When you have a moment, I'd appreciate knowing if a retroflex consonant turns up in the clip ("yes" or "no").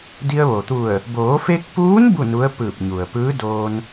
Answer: no